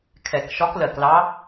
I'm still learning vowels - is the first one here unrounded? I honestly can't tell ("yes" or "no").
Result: yes